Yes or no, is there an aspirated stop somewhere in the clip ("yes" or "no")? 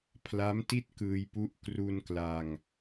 yes